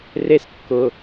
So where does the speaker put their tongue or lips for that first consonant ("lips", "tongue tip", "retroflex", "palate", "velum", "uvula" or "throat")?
tongue tip